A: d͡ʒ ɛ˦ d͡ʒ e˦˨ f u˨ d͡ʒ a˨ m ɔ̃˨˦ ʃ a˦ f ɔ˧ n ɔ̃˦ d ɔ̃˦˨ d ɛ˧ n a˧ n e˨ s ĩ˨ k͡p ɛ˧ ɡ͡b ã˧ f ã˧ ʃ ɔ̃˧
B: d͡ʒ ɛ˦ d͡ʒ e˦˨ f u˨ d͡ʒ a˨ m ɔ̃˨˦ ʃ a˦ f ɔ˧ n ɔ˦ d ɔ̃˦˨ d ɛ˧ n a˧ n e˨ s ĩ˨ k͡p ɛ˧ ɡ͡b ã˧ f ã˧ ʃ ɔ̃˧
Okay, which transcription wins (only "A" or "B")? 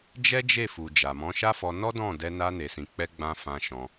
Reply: B